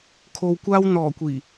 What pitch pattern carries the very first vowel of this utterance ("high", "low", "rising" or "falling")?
low